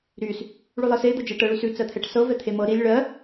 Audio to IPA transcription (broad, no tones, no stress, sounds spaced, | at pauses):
ɾ y s | ɭ ʉ lˠ ɤ s e d̪ ɤ d͡ʒ e ʈ ɤ ɭ y s ʉ t͡s ɜ t̪ʰ ɛ ʈ s ɤ v ɛ t̪ʰ e m ɤ ɾ i lʲ ɭ ɜ